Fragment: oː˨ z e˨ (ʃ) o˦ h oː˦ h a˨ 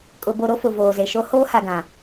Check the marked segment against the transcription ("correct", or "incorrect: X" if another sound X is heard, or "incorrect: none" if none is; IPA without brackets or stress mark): correct